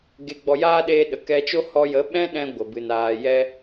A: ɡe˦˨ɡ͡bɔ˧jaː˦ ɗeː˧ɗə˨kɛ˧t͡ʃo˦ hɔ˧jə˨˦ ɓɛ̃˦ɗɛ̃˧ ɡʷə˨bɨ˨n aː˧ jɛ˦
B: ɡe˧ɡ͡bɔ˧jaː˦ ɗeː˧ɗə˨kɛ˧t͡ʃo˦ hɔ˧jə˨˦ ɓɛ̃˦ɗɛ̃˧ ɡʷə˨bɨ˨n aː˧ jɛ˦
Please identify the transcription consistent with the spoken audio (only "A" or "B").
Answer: B